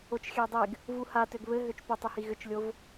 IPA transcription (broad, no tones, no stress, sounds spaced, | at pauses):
o t͡ʃ xʲ ɘ j dˤ e ɡ | v u h a t ø ɡ β ɘ ɦ ø t͡ʃ p ø tˤ u h i ɣ ʏ t͡ʃ lʲ o v